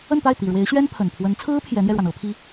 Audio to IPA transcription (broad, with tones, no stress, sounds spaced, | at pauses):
ə˥˧ n t̪ a˥˩ ɪ̯ t̪ i˨˩ ɻ w e˧˥ ɪ̯ ɕ ɥ ɛ˥ n pʰ ə˨˩ n pʰ w ə˧˥ n t͡sʰ ɹ̩˥ pʰ j ɛ˧˥ n̪ j ɛ˧ ɻ w a˩ n ɤ˥ pʰ i˥